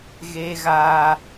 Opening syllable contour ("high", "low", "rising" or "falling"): high